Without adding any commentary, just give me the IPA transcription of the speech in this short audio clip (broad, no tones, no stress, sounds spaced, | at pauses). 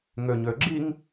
ŋ ø ɲ ø ɡ͡ǁ i ŋ